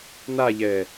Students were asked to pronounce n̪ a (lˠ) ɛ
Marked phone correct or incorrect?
incorrect